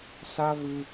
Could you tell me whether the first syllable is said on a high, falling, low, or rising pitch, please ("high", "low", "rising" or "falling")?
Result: high